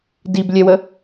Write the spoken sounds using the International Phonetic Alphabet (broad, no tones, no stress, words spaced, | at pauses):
diblʲɛwə